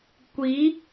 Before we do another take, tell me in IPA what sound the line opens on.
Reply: kʷ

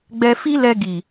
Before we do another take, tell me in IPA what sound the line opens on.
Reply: ɡ͡b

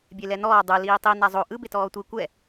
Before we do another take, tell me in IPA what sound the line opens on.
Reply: bʲ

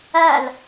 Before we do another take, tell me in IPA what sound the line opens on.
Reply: æ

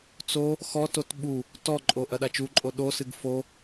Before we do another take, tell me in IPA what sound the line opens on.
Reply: t͡s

